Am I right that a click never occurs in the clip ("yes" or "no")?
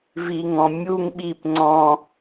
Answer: no